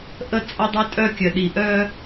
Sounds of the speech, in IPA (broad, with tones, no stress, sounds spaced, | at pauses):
ʔ ə˦˨ t͡sʼ ʌ˦ dˤ œ˦ tʼ œ˦ kʲ œ˨ ɗ i˨ ʔ œ˦